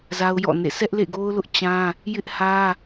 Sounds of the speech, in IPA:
za˦ʊ̯jɔ̰˦˨nḛ˦˨ sʰɛ˦ʔlḛ˦˨ɡo˦ʊ̯lʊ˦ʔ t͡ɕã˦ | jɪ˦ʔhä˦

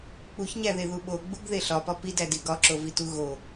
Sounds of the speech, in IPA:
k͡puçɲæðeðu ɓoɡ͡buɡðe ɬɒpɒ pidædi ɡɒǁovitu ɣo

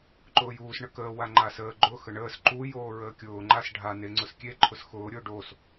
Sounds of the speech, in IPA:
ǃʊːjuːs ɳəkəː waŋ͡ǃasəː ɡ͡ǃʊ xəɳəːs ǃu joːɹəːkʲʊː ŋ͡ǃas ɖʱa neŋ͡ǀʊskʲe ǃʰʊsxʊː ɾʲʊːɖos

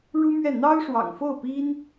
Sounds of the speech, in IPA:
ɻu˥mɥɛ˥˩ n̪ɑ˥ʊ̯ʂwɑ̰˨˩ŋfo˥˩ʊ̯pi˥n

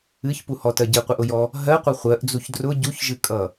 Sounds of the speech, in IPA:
ɨçpuhɔtɜ ɟɨqʷɨʔʊjɔ | ɦɜqʷʌ χʷɜʔd͡zuç drʊ ɟuçʒɨkʼʌ

